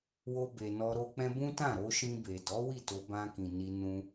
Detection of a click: absent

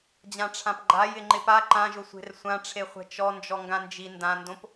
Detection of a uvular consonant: present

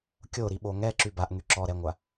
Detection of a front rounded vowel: present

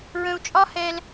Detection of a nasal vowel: present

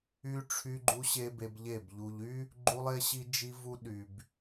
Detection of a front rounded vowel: present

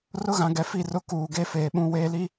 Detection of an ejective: absent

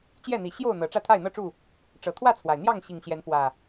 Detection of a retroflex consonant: present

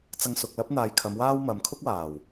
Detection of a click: absent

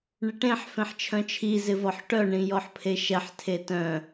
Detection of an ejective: absent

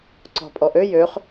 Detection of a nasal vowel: absent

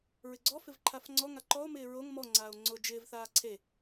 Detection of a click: present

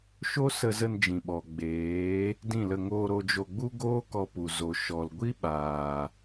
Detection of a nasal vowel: present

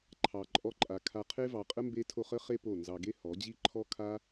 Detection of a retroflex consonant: absent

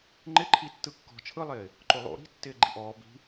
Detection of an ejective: absent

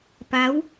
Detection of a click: absent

